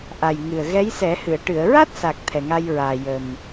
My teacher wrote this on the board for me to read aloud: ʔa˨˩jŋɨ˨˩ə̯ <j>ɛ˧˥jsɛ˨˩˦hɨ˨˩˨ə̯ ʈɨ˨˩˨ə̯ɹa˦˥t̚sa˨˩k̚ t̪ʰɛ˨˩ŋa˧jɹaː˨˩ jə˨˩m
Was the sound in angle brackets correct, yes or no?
no